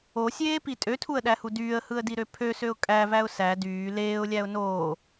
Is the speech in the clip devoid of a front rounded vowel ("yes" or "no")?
no